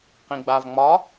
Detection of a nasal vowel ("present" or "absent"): present